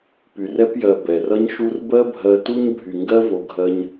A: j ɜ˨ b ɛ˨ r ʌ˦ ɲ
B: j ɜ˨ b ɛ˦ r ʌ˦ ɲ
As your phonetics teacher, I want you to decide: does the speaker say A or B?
A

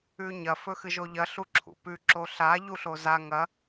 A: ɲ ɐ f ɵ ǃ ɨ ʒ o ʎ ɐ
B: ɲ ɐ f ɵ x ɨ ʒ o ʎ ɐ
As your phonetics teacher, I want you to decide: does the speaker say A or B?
B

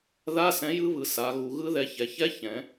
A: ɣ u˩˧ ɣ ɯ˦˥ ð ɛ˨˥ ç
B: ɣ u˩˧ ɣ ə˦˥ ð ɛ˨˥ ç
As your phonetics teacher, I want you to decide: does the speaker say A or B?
A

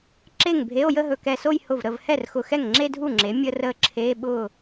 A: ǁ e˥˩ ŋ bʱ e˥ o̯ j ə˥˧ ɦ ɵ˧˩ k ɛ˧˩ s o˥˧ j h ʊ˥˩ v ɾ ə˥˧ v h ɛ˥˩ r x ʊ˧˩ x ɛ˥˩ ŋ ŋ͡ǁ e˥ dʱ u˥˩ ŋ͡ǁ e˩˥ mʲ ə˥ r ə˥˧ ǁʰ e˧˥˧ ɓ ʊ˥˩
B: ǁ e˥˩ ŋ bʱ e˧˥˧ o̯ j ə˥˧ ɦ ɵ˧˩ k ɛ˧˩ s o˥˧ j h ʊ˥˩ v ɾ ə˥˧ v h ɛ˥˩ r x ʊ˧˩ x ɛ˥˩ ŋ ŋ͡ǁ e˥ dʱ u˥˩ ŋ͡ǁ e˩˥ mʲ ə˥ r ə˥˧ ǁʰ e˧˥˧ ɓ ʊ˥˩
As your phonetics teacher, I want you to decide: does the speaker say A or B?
B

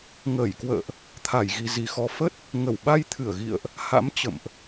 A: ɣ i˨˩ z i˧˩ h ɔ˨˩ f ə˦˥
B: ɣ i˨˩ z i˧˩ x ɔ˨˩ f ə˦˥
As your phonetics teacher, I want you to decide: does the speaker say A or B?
B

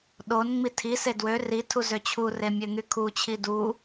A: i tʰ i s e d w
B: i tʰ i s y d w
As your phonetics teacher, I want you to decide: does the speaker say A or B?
A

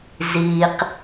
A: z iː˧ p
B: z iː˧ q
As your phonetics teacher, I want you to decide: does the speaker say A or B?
B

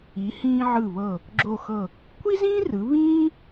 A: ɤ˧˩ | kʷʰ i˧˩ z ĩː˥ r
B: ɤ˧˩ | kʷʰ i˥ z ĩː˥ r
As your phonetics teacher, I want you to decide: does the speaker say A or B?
B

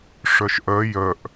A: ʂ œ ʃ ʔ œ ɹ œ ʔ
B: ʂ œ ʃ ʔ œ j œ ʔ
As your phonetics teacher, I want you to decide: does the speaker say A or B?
B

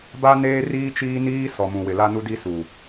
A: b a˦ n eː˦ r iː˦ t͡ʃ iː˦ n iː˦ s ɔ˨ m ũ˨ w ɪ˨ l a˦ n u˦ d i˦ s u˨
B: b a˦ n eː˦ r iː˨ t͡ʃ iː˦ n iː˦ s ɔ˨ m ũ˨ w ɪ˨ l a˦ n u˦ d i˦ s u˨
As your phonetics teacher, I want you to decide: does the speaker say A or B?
A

